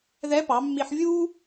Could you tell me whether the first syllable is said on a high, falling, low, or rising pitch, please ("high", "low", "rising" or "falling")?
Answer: rising